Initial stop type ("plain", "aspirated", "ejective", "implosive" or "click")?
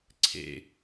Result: click